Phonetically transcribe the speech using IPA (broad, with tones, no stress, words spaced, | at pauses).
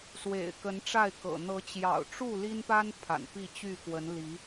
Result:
swḛ˨˩ɪ̯kə˨˦nʈ͡ʂa˥˨ɪ̯kɤ̰˨˩ n̪ɤ˨˦t͡ɕjɑ̰˨˩ʊ̯ ʈ͡ʂu˥˨li˦npa˦n pʰa̰˨˩npi˥˨t͡ɕy˥˨kwə˨˦n li˨˦